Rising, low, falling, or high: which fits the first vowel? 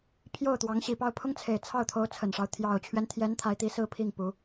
falling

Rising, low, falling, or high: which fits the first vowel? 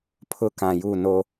high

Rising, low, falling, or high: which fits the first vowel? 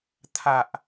low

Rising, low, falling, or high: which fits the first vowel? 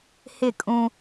falling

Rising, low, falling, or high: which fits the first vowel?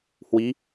rising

